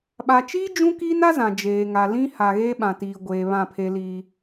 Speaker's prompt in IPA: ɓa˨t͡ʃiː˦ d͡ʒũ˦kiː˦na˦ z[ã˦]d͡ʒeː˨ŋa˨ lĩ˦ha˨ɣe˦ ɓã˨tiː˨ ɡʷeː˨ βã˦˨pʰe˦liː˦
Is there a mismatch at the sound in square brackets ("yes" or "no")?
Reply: yes